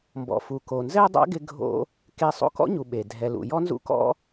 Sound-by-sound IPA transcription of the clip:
m b ɔ̰˨ f u˨ k o˨ n z ɛ˦ dˤ a̰˦ ɡ ɪ˧ ɡʱ o̰˧ | k e˧ sˤ o̰˦ k ɔ̰˦ ɲ u˨ ɓ e˨ dʱ ɛ˨ l ṵ˨ j ɔ˦ n z ṵ˦ k ɔ̰˦

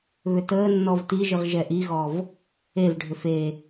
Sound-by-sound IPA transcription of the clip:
β ʏ t əː nː ɔ v t i ʒ ɨ ʁ ʒ ɛ ʔ i ɣ ɔ v | e v ɖʱ ʏ f e

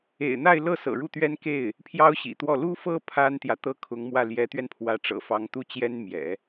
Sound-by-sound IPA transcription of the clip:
ḛ˨˩ ɪ̯ n̪ a˥˧ ɪ̯ l ɤ˥˩ s ɤ̰˨˩ ɻ u˥˩ t̪ ɥ ɛ˥ n k e˥˩ ɪ̯ | pʰ j ɑ˥ ʊ̯ ɕ ḭ˨˩ t̪ w ɔ˥˩ l u˥ f ɤ˥ pʰ a˥ n t̪ j ä˨ t̪ ɤ˥ kʰ ʊ˧˥ ŋ m w ä˥˩ l j ɛ˧˥ t̪ ɥ ɛ˧ n pʰ w ä˧˥ ʈ͡ʂ ɤ̰˨˩ f ɑ˧˥ ŋ t̪ u˥˩ t͡ɕ j ɛ˥ n m j ɛ̰˨˩˦

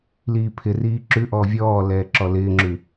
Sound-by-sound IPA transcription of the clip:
l iː pʰ ɪ r iː ǁ ʉ ʔ ɔː vʲ ɔː l ɛː ǁ ɔ l ɪː ŋ͡ǁ ʉ

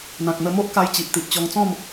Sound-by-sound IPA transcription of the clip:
n̪ ã˨ k̚ n̪ ə˧ m o˦ ʔ k a˧ j t͡ɕ i˨ ʔ t̪ i˨ ʔ t͡ɕ ɔ˧ ŋ t͡s ɔ̃˥˧ m

